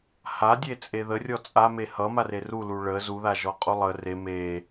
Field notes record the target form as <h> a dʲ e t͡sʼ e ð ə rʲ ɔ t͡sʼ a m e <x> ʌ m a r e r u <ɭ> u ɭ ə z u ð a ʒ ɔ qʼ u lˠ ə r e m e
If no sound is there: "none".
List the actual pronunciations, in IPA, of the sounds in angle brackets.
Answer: h, h, l

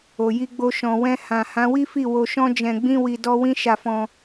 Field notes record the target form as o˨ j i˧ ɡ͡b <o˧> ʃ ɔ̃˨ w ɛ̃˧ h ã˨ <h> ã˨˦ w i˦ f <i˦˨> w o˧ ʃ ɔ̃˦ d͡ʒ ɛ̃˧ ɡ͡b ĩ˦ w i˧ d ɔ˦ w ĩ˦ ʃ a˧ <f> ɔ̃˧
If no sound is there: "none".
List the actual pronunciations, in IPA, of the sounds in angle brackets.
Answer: o˧, h, i˦˨, f

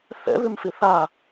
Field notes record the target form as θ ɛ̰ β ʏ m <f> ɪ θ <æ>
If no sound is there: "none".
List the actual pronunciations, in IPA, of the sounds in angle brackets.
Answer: f, a

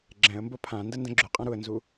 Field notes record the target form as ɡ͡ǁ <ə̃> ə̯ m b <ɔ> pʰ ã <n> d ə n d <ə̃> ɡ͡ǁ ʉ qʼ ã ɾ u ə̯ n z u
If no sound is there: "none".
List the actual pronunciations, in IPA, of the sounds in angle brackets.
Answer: ɛ̃, o, n, ə̃

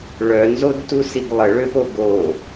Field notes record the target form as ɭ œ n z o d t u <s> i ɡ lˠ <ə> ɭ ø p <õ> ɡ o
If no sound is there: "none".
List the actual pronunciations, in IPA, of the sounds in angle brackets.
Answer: s, ə, o

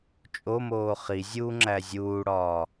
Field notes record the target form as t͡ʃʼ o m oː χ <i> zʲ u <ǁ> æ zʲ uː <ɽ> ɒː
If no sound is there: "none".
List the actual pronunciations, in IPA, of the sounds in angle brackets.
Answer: i, ŋ͡ǁ, ɽ

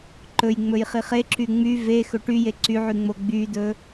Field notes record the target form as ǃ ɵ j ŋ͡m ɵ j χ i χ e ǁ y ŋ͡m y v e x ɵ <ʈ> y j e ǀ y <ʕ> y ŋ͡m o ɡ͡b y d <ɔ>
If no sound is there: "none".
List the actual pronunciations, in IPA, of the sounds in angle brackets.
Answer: ʈ, ʕ, ɵ

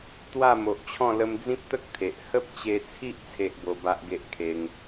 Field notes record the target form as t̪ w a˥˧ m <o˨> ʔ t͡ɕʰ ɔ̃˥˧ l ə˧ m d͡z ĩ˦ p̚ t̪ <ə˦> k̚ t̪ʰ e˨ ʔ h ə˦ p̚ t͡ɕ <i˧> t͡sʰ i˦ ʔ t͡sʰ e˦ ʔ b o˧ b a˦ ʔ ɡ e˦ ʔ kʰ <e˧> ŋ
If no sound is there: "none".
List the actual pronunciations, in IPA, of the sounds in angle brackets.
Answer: o˨, ə˦, e˧, e˧

